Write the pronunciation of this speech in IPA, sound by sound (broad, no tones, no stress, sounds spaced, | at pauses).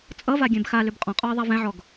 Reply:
t͡sʼ ʌ v a ɡʲ ɛ̃ b x a l ʏ b qʼ ɔ̃ qʼ ɔ ə̯ ðˤ a v ɛ̃ ʕ ɔ ɡ